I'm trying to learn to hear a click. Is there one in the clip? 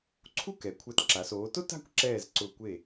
yes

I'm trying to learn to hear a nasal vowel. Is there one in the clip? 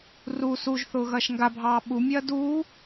no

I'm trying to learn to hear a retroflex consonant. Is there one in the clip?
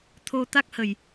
no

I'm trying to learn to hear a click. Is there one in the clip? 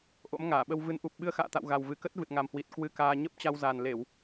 no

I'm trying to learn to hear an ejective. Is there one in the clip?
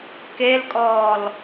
yes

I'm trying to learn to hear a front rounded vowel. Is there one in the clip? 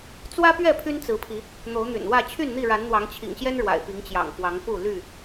yes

